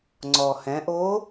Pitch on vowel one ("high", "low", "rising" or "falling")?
low